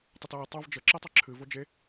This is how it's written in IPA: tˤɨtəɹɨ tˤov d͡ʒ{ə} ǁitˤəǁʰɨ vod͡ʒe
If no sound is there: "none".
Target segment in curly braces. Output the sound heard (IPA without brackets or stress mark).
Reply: ə